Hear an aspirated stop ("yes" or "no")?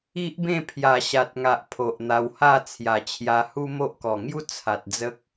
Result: yes